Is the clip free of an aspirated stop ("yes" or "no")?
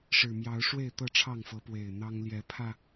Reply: no